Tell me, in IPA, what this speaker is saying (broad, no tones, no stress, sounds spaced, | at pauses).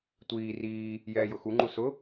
tʷ iː r iː | j ɛː j ʊ x u ŋ͡ǃ u s ʊ